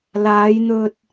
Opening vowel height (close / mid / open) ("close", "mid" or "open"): open